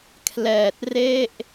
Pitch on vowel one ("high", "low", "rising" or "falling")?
low